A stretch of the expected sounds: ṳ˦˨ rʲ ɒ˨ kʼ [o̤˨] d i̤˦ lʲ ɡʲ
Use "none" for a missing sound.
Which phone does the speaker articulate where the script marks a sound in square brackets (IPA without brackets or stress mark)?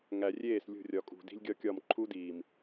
ṳ˨